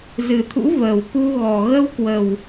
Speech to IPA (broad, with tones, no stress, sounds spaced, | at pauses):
z ɨ˨˩ t̪ʰ ṵ˧˥ v əː˨˩ w k u˧ ɣ ɔ˨˩ ɣ ə˧ w k w ə˨˩ w